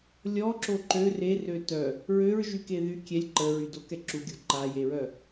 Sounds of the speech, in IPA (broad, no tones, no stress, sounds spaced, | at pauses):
lʲ ɔ ǁ o ǃ ø r e r ø t œ | ɹ ø ɹ ʒ y k e ð y kʲ ɛ lʲ ǃ ə ɹ y d o k ɛ ǁ u ɡʲ o ǃ a j e ɹ œ